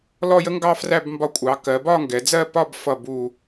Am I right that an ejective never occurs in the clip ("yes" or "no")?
no